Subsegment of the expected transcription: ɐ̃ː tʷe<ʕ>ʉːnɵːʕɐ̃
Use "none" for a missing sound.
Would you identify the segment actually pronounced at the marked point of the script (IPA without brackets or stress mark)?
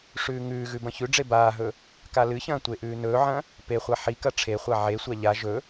ʔ